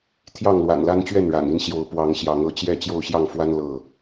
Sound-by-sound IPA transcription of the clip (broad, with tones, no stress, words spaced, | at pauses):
t̪ʰjɑ˥˨ŋlwa̰˨˩nla˦n t͡ɕɥɛ˥˨nɻa̰˨˩ni˥˨n ɕjo˨˦ʊ̯ pwɑ˨˦ŋɕjɑ˨˦ŋɤ˨˦t͡ɕjɛ˥˨ t͡ɕjo˥˨ʊ̯ɕjɑ˥˨ŋfwa˦n lɤ˥˨